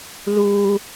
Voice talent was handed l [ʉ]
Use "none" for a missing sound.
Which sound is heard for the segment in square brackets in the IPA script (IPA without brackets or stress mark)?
u